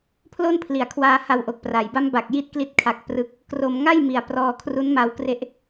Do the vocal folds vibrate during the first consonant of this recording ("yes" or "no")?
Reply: no